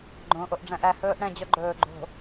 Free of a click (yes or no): no